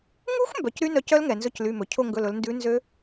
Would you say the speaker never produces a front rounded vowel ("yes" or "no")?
no